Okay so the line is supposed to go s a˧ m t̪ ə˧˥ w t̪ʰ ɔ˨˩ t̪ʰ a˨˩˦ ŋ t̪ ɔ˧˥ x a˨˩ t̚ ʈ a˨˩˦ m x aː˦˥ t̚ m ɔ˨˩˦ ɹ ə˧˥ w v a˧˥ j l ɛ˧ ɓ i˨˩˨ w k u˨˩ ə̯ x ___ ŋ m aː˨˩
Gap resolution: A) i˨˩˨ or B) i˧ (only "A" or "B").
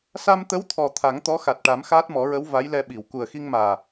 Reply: B